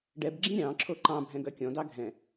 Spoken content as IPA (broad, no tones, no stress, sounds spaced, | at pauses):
ɖ ɛ b ɡ͡ǁ ĩ ɾʲ ɑ̃ ǁʰ o ǃ ɑ̃ bʱ ɛ̃ ɡ œ kʲ ɔ̃ d ɑ ɡʱ ɛ̃